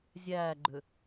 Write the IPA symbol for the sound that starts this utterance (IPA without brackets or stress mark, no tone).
zʲ